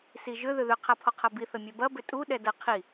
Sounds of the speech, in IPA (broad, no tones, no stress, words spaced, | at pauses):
siʒʏ ðʏðʏ qʰapʰɔqʰɐbi θəmʲɛbɐ bʏtʼu ɗɛdɐ qʰi